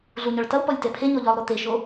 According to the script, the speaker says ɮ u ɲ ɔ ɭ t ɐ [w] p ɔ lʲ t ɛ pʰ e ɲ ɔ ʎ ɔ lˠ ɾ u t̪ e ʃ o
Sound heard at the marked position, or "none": w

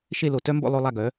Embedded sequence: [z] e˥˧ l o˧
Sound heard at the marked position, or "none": ʃ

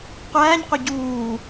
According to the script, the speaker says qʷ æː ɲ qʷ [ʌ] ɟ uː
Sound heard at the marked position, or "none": ʌ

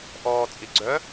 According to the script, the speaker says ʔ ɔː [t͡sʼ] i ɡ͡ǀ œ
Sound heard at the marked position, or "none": t͡sʼ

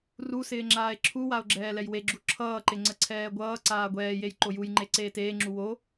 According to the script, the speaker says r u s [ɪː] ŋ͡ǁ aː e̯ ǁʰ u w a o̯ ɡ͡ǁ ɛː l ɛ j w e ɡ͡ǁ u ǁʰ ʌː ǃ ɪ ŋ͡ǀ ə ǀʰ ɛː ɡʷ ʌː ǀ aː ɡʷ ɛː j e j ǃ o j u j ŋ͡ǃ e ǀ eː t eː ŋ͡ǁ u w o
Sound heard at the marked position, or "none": ɪː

